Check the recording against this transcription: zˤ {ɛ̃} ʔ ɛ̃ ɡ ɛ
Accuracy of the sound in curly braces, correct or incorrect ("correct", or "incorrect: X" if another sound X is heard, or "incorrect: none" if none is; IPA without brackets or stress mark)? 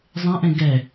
correct